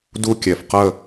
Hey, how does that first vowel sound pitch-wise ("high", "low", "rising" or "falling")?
falling